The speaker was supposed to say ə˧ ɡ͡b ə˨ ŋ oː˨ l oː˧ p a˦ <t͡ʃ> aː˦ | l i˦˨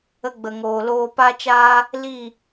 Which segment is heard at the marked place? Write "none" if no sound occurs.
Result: t͡ʃ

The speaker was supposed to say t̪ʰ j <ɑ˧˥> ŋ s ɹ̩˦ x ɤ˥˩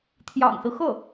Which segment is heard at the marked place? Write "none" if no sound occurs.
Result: ɑ̰˨˩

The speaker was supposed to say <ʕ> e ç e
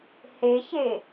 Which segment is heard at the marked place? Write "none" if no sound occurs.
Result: h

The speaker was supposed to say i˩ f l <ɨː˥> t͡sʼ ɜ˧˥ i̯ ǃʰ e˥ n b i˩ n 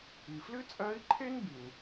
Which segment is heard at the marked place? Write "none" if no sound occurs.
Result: ɨ˥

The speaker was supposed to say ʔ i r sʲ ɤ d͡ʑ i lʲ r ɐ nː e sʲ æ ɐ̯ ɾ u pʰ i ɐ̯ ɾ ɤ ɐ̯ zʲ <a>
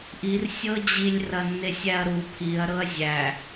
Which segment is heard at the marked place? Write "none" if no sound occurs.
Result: æ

